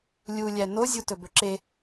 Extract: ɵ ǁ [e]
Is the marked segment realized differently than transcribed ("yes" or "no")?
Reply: no